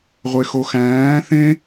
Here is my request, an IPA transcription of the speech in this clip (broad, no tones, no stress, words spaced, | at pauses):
ʁʷexoxæ̃ː θẽ